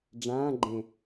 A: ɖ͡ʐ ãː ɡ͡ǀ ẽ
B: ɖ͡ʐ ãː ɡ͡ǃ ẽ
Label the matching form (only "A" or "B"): B